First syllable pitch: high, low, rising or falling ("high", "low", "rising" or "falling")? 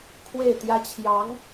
falling